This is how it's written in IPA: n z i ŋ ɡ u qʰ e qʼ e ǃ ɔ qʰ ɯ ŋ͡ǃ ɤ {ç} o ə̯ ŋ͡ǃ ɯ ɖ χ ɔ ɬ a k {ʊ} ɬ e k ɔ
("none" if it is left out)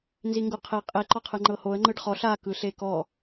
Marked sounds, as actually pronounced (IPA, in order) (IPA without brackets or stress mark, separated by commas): h, ɯ